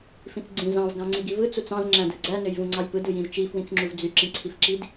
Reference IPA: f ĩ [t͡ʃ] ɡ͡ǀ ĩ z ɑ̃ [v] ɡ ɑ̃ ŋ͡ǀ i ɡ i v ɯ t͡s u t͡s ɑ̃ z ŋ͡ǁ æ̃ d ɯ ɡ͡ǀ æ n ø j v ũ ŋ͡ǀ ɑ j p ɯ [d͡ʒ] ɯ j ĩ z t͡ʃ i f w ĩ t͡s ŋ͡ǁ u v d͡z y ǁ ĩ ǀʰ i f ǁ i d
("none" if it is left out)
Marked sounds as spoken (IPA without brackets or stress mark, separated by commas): t͡s, v, d